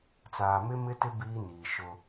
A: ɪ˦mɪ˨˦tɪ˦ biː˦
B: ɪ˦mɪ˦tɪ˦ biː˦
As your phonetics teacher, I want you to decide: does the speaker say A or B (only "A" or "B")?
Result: B